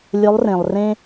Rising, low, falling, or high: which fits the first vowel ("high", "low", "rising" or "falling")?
rising